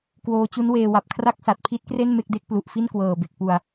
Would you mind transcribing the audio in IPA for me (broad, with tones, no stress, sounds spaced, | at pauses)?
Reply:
k w oː˧ t͡ɕ u˦˥ n w eː˧ w a˨˩ p̚ kʰ r a˥˩ k̚ s a˨˩ t̚ pʰ i˦˥ t̚ k r e˥˩ n m e˥˩ k̚ d e˦˥ k̚ p l u˨˩ ʔ f i˥˩ n k w ɤː˨˩ b e˨˩ k̚ p u˨˩ a̯